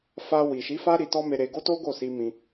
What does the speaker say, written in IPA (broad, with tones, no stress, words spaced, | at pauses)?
fa˧wi˨ʃi˨˦fa˦ ɾi˧tɔ˦me˧ɾe˧ ɡo˦to˦ ɡo˦˨si˧mĩ˧